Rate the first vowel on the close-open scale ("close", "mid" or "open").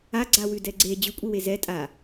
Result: open